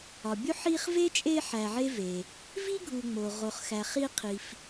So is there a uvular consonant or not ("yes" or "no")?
yes